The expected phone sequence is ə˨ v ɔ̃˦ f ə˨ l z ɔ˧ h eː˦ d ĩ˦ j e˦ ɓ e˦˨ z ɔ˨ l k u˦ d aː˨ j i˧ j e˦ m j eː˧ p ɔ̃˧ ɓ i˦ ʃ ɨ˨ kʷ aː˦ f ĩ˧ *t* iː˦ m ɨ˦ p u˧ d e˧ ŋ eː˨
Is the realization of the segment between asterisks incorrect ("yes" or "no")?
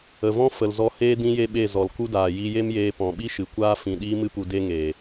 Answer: yes